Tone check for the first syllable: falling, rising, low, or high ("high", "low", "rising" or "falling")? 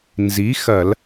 rising